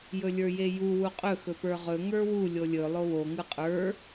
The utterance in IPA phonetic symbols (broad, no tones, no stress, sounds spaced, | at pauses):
j ɵ lʲ ə˞ j e j u w u qʼ ɵ x ɵ p ə˞ ʁ ɵ ŋ ə˞ w u lʲ o lʲ ɵ lˠ o w o ŋ ɯ qʼ ə˞